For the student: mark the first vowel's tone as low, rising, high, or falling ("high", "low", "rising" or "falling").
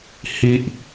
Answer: low